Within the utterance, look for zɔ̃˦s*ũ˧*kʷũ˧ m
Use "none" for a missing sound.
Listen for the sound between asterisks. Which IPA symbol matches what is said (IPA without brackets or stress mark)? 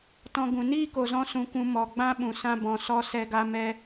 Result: ũ˧